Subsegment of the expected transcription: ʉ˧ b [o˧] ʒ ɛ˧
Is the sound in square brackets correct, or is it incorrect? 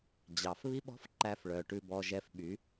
incorrect